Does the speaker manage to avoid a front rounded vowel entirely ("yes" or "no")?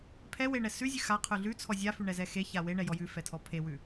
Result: yes